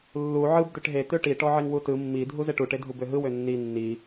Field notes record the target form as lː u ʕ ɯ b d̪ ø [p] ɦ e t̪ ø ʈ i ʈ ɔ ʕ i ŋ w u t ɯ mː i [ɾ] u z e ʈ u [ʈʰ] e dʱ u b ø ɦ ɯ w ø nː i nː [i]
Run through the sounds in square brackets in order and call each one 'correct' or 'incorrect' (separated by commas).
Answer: incorrect, incorrect, incorrect, correct